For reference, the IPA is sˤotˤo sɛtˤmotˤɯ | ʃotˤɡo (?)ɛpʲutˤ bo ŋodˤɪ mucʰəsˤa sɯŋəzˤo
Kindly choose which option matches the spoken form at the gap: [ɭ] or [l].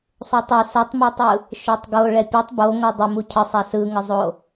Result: ɭ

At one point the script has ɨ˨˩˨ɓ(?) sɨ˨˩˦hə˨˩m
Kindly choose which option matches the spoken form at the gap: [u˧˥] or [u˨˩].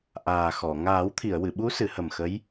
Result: u˧˥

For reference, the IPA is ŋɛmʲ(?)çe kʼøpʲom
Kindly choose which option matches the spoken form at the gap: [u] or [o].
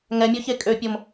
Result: o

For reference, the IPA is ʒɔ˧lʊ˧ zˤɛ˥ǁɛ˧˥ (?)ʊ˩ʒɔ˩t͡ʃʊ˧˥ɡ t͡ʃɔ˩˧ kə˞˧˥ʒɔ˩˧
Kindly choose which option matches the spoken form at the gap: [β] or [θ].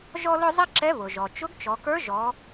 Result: β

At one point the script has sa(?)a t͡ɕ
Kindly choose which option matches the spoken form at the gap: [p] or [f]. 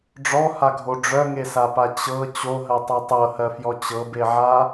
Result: p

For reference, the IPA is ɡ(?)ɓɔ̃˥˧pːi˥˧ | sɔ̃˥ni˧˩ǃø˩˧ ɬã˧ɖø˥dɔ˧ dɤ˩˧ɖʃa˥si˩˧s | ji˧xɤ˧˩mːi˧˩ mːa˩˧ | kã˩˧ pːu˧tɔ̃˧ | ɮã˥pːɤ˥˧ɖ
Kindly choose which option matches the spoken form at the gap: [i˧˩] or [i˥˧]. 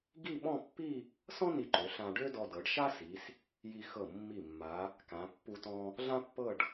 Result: i˥˧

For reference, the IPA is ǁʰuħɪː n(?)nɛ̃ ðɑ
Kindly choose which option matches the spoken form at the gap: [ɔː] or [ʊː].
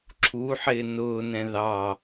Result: ʊː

